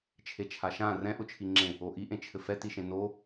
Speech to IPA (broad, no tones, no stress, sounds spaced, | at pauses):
t͡ʃʰ e t͡ʃʰ a ʃ ã r ɛ̃ ʔ ʊ t͡ʃʰ i ŋ͡ǁ ẽ | o ʔ i ʔ ẽ t͡ʃʰ ɘ f ɛ t i ʃ ẽ n o